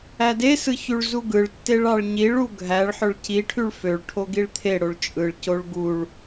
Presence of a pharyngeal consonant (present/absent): present